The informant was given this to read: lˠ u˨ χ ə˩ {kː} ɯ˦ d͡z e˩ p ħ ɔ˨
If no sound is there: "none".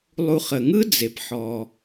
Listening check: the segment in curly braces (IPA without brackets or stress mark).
ŋ